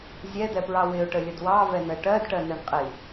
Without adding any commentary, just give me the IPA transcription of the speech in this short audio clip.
zʲ ɛ d̪ ɛ p ɹ ɑ w ɪ ʊ̯ ʈ ə lʲ ə d w ɑ v ɛ n ɜ ʈ ɜ d ʈ ɜ n ɛ ɳ qʼ i

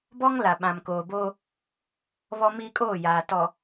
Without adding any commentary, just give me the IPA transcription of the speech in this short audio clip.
b ɔ˦ ŋ l a˨ ɓ ã˨ m k oː˨ b oː˦ | β ɔ˦ m i˦ kʼ oː˦˨ j aː˨ t ɔ˨

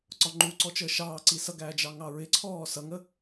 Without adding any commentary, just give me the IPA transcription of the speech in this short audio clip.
ǀ ɒ ŋ͡ǃ u ǀ ɔ t͡ʃ əː ʃ ɑː ǀ i s ʌ ɡ æː d͡ʒ ɑ ŋ ɑ ɹ ɪ ǀʰ ɔː s ʌ ŋ ə

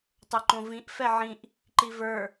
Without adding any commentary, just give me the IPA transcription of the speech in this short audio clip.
tˤ o ǃ õ v ĩ ʔ f ɛ ʕ ĩ ʔ | ǃ i v ə˞

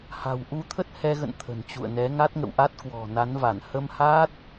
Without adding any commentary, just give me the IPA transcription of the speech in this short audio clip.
h a̤˨˩ w ʔ u˧ t̪ʰ ə˦˥ t̚ h ɛ˧ ɣ ə̰˧˨ n t̪ʰ ə̤˨˩ n t͡ɕ ṵ˧˨ ə̯ n ɛ˨˦ ŋ a˦˥ t̚ ŋ ə̰˧˨ w ʔ a˦˥ t̚ k w ɔ̤˨˩ n a˨˦ n v a˧˩ n h ə˧ m h aː˦˥ t̚

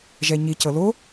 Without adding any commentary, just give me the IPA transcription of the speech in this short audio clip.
ʒ ɛ ɲ i c ɤ l o

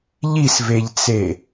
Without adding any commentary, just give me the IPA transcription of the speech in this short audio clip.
ʎ i s v e ʎ t͡s e

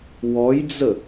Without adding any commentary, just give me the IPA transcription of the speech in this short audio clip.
w ɔ j d͡z ə

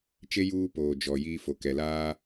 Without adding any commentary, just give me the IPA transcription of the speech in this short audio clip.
t͡ʃ e˦ j uː˦ p oː˨ d͡ʒ ɔ˨ j iː˦ f o˨ k ɛ˨ l aː˦

